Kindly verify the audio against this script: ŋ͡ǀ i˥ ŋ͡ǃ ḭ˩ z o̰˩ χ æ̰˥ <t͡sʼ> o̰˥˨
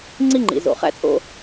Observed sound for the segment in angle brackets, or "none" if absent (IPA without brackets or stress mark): t͡sʼ